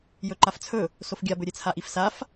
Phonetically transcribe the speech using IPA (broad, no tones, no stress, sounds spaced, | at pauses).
j ɵ ǃ a f t͡sʰ ɵ | s o f ɡʲ a b ɵ ɾʲ e t͡sʰ a ʔ i f s a f